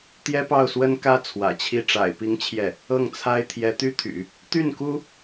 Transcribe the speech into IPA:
t̪ j ɛ˥ p ɑ˥˩ ʊ̯ s w ə˥ n k ä˥ t͡sʰ w ä̰˨˩ t͡ɕʰ i˥˩ ʈ͡ʂ a̰˨˩ ɪ̯ p i˧˥ ŋ t͡ɕʰ j ɛ˥˩ | ɤ˥˩ ŋ t͡sʰ a˥ ɪ̯ t̪ʰ j ɛ˧˥ t̪ y˥ t̪ʰ y̰˨˩˦ | t̪ y˥˩ n k u˥

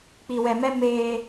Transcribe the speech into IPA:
k͡p i˧ w ɛ˧ m ɛ˦ m eː˧

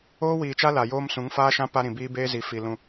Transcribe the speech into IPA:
oː˦ w iː˨ t͡ʃ a˦ l a˨ j oː˦ m s ũ˨˦ ŋ f aː˦ ʃ ã˦ p a˦ ɾ ĩ˨ b iː˦ b eː˦ z i˨ f i˨ l ũ˦˨

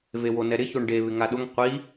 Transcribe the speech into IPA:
v e w o n ɛ ɾ ɪ ç o ɳ ɖ e β ɪ ŋ a ɗ ʊ ŋ qʷ i

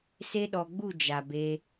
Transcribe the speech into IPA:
s e˦ ɗ ɔ˧ ɡ͡b u˦˨ d͡ʒ a˨ b e˧

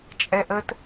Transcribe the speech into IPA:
t͡ʃʼ ɛ ʔ ə t

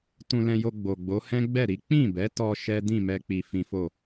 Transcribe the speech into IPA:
t ũ˧ l ɛ̃˧ j o˧ ɡ͡b o˨ ɡ͡b o˨˦ h ɛ̃˦ ɡ͡b ɛ˦˨ ɾ i˨˦ k͡p ĩ˦˨ b ɛ˨˦ t ɔ˧ ʃ ɛ˦ d ĩ˦˨ m ɛ˧ k͡p i˧ f ĩ˦ f o˦˨

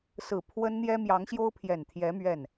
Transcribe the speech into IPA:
s ɹ̩˨˩ pʰ w ə˥ n n̪ j ɛ˥ m j ɑ˧˥ ŋ ɕ j o˥ ʊ̯ pʰ j ɛ˨˩ n t̪ʰ j ɛ˧˥ m ɥ ɛ˥˩ n

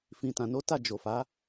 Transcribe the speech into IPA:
f ĩ˨ t ã˨ n o˨˦ t a˦˨ d͡ʒ o˨ f a˨˦

